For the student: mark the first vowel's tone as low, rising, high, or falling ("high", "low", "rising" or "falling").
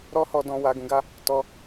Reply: high